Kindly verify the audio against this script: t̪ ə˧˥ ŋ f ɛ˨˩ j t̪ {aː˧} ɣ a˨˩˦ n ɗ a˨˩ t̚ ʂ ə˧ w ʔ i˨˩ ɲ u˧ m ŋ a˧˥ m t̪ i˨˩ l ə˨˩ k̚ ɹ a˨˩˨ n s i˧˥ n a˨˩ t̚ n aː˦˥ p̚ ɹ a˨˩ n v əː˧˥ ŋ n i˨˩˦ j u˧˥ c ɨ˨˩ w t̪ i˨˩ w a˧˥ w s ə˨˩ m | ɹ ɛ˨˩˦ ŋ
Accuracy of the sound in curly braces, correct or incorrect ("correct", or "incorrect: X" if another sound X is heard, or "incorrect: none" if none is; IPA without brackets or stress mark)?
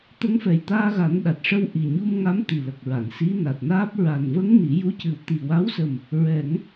correct